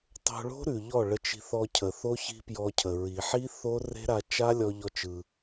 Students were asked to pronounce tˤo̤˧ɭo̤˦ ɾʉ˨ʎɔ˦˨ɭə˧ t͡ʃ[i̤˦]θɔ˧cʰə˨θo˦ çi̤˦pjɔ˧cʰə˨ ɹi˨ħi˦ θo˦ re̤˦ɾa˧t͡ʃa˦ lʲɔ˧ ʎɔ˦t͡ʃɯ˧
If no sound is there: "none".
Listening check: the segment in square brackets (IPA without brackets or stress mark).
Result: i̤˧